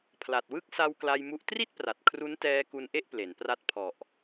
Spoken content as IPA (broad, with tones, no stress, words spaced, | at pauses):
pʰla˨˩t̚wɯ˥˩k̚ sa˧w kla˧jmu˦˥ʔ tri˥˩t̚pra˨˩t̚ kʰru˦˥ntɛː˧ ku˧nʔe˥˩ʔ ple˩˦npra˦˥t̚ pʰɔ˨˩ʔ